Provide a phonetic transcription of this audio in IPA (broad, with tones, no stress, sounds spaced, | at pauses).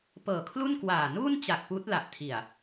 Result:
p ɤː˨˩ kʰ l u˥˩ n k w aː˨˩ n uː˥˩ n t͡ɕ a˨˩ k̚ p uː˦˥ t̚ l a˨˩ ʔ tʰ i˨˩ a̯